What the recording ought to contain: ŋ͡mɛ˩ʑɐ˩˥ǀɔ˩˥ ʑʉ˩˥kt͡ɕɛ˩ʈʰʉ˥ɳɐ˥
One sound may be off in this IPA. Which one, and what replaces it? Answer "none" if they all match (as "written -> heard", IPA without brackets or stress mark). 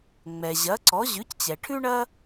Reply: k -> c